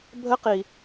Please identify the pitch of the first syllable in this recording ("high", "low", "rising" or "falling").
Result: high